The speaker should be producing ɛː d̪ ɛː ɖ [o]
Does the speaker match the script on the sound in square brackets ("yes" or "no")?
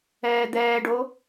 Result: yes